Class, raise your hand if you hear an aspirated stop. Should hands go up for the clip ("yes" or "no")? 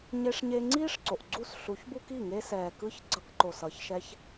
no